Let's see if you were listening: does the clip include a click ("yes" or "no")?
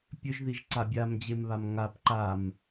yes